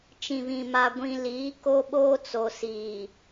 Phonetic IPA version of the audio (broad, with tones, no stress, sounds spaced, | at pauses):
t͡ʃ ĩ˨ β ĩ˨ m a˨ ɡʷ ĩ˨ l iː˨˦ k o˦ ɓ oː˦ t͡s o˨ s iː˨